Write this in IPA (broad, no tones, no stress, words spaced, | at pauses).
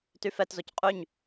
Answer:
tyfɛtzoc qʼyɲ